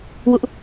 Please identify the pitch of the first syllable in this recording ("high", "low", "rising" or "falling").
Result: high